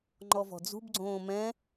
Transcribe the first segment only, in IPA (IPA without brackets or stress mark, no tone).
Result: ŋ͡ǃ